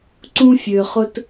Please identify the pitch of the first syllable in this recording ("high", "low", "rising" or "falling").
high